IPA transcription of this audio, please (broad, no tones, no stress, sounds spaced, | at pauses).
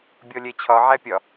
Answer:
bʲ ɔ lʲ ɛ t͡ɕʰ ɒ ʕ æ pʲ ɒ